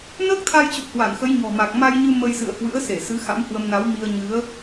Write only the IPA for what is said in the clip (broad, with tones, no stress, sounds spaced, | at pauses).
n əː˦˥ k̚ t̪ʰ a˧ j t͡ɕ ṵ˧˨ h w a˧˩ n x ə˨˦ j ɲ ɔ̤˨˩ m a˨˩ k̚ m a˧ j ɲ ɨ˧ m ə˧ j s ɨ̰˧˨ ə̯ h w ɨ̰˧˥ ə̯ s e˧˩ s ɨ˨˦ x a̰˧˥ m h w ə˧ m n a˨˦ w m i˧ ə̯ ɲ ɨ˨˦ ə̯